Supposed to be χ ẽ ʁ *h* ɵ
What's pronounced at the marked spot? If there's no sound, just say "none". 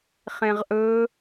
ʔ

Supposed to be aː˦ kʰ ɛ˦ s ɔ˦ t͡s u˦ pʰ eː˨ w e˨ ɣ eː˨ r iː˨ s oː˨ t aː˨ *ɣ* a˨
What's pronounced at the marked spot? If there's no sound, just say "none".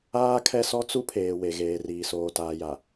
j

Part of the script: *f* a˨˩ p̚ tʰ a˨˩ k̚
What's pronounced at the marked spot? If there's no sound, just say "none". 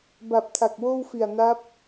b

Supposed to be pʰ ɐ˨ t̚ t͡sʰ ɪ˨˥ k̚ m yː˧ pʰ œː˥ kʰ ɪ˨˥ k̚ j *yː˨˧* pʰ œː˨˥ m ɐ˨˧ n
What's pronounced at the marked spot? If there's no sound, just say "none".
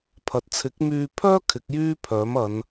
yː˥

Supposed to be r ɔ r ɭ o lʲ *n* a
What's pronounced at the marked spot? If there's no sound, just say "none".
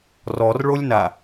n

